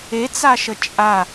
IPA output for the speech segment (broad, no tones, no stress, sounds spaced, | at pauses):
e t͡s a ʃ ə t͡ʃʼ a